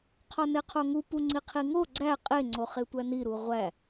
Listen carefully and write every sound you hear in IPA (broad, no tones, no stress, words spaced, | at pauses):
qʰɒneqʰoŋu puŋ͡ǀiqʰiŋo ɡ͡ǀæ qʼe ŋ͡ǀoχetʷæni ɾuʁʷæ